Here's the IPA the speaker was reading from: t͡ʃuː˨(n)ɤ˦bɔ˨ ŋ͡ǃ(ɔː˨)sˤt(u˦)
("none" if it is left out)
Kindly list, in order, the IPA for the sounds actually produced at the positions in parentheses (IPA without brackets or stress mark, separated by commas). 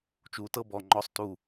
t, ɔ˨, u˨